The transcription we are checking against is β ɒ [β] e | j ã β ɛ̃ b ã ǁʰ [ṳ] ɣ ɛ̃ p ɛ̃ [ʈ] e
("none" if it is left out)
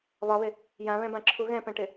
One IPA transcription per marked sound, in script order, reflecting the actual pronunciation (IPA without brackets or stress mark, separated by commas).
β, u, ʈ